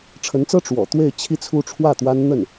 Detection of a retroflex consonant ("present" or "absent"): present